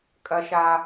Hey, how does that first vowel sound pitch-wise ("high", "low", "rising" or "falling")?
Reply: high